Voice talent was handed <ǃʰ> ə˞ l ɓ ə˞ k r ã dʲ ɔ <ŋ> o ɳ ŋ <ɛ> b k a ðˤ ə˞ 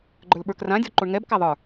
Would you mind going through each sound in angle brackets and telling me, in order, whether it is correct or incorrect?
incorrect: ɡ͡ǃ, incorrect: ǃ, correct

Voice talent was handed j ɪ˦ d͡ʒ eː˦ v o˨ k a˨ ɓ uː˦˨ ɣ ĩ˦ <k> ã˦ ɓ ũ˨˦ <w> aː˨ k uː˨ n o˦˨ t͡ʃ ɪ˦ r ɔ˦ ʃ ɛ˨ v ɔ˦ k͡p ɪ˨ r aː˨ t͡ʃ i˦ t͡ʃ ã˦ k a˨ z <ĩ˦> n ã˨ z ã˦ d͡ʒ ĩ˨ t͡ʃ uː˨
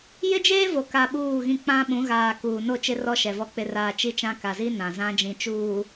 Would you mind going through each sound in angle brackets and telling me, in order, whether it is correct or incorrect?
incorrect: k͡p, incorrect: ɣ, incorrect: i˦

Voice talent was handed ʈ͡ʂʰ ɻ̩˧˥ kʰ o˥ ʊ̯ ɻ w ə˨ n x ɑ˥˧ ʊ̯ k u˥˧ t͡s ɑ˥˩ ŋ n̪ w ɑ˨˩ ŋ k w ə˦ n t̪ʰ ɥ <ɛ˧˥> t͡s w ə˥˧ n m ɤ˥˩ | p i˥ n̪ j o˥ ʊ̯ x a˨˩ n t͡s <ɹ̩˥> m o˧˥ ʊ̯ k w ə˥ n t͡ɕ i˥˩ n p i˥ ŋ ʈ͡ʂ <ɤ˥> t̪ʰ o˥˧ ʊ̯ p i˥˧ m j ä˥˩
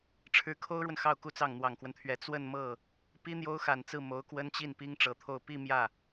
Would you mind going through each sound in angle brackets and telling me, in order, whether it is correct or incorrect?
correct, incorrect: ɹ̩˥˩, incorrect: ɤ˧˥

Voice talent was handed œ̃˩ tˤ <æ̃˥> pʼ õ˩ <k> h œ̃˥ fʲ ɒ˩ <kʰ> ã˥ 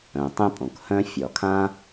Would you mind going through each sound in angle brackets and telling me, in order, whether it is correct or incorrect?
incorrect: ɛ̃˥, correct, correct

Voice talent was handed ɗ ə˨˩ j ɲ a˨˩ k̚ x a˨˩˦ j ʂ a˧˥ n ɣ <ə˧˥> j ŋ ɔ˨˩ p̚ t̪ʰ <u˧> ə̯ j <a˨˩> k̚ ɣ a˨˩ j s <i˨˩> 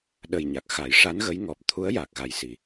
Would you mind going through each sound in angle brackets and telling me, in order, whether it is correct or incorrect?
correct, incorrect: u˧˥, correct, correct

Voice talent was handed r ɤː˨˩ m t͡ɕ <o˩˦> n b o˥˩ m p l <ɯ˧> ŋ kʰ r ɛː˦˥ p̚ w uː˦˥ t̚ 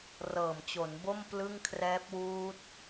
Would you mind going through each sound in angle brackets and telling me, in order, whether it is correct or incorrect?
correct, incorrect: ɯ˥˩

